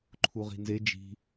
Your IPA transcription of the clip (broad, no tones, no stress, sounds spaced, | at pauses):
ǃʰ u ʁ i̤ n z e d͡ʒ i̤